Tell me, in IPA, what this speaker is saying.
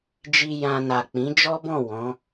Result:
d͡ʒ i˧ j ã˧ n a˨ k͡p ĩ˨˦ d͡ʒ ɔ˦ b ɔ̃˦˨ w ɔ̃˨˦

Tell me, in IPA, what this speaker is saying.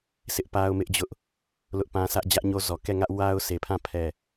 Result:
s ɪ˦ ʔ p a˦ ʊ̯ m ɪ˦ ʔ d͡ʑ ʊ˦ ʔ | l ʊ˦ ʔ p ã˦ s ä˦ ʔ d͡ʑ ä˦ ʔ ɲ o˦ z ɔ˨ k ɛ˦˨ ŋ ä˦ ʔ w a˦ ʊ̯ s e˨ pʰ ã˦˨ pʰ ɛ˦˨

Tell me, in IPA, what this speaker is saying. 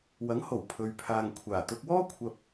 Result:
w ɐ˨˥ ŋ h o˨˩ w pʰ ɵ˨ ɥ pʰ aː˨ ŋ kʷʰ aː˨˩ t̪ ʊ˧ k̚ w ɔː˥ kʷʰ ɐ˧ p̚

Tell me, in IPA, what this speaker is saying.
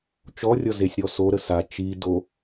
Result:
t͡ʃ ɔ rʲ ɔ z e sʲ ɾ ɔ s o ɾ ə s a t͡ʃ i d o

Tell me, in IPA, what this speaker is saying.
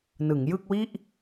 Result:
n ɯ˩˦ ŋ j ɯ˥˩ k̚ w i˥˩ ʔ

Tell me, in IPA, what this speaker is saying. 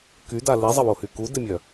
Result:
k y d a l i zˤ ə w o h y k u d ɪ mʲ œ

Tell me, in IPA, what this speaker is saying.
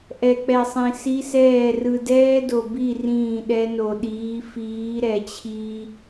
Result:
ʔ ɛ˨ k͡p ɛ˨ sˤ ĩ˨ s i˦ s ɛː˦˨ r ɯ˨ d ɛː˦ d o˨ b i˦˨ r ĩː˦˨ ɗ ɛ˦ n o˨ ɗ iː˨˦ f iː˨˦ ɾ ɛ˨ t͡ɕʰ i˦

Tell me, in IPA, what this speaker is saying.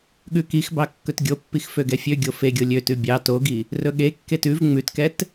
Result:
ɠ ʉ k i x b ɑ kː ɵ t ɡʲ o pː i x f ø ɡ ɛ fʲ ø ɡʲ o f e ɡʲ o lʲ ø t ʉ bʲ ɑ t o ɡ i | r ɵ ɠ e kː e t ʉ v ŋ͡m ʉ t k ɛ t

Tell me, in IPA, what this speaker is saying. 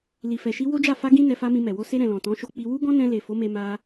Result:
l i˨ f ɛ˨ ʃ i˧ w o˦ d͡ʒ a˦˨ f a˧ ɡ ĩ˧ n ɛ˧ f a˦ m ĩ˧ m ɛ˨ w o˧ s e˧ ɾ ɛ̃˨ l ɔ̃˨ t ɔ̃˨˦ ʃ o˧ k͡p i˧ w u˦ ɡ ɔ̃˦ n ɛ̃˧ l e˨ f o˨˦ m e˧ m a˦

